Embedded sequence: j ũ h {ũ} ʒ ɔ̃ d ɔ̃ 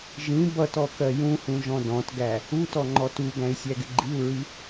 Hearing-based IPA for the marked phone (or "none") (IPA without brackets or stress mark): ũ